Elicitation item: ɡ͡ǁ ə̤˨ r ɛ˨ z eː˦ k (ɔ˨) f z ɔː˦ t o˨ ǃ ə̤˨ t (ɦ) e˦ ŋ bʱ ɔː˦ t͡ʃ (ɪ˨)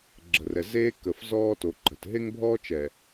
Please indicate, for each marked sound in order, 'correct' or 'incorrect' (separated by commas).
incorrect, correct, incorrect